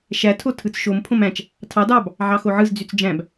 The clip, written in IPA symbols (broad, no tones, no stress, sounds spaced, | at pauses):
ʃ æ tʰ o tʰ ɯ t͡s ʃ o m pʰ õ m æ̃ t͡ʃ | tʰ ɑ d ɑ b | ʕ ɑ x o ʕ ɯ z d͡z y t͡s d͡ʒ æ̃ b